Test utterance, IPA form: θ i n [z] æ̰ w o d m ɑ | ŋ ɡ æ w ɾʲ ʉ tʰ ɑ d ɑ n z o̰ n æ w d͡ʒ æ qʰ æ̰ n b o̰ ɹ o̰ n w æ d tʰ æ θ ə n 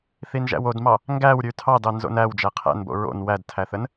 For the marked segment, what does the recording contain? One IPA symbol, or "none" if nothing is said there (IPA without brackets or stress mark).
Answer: ʒ